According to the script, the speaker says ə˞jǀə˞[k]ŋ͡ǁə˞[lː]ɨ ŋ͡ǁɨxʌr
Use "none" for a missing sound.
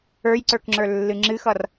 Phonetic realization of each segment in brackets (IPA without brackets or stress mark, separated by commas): k, lː